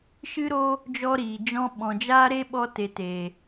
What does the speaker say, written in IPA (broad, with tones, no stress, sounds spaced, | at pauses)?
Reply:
ʃ ɨ˦ ɾ o˦ | d͡ʒ ɔ˦ ɾ iː˨ d͡ʒ ɔ̃˦ ɓ ɔ̃˨ d͡ʒ aː˦ ɾ e˦ ɓ ɔ˧ t e˨ t e˨